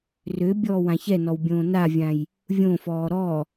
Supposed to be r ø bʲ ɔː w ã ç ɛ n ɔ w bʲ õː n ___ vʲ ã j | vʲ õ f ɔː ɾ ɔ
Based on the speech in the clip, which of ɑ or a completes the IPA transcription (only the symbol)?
a